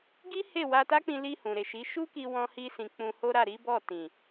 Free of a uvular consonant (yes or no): yes